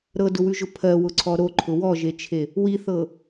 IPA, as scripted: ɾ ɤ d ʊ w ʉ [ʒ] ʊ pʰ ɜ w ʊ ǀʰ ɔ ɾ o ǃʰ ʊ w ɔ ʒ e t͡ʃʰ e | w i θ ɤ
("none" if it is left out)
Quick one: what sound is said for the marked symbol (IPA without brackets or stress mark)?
ʒ